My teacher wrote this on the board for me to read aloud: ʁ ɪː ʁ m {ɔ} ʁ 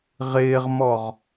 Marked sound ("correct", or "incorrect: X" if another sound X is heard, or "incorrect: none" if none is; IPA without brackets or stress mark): correct